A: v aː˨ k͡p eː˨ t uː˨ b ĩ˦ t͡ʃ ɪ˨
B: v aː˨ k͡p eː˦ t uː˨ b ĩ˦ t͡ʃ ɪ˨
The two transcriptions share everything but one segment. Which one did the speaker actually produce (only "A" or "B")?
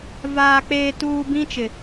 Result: A